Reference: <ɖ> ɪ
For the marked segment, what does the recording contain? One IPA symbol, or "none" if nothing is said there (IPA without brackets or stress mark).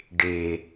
ɖ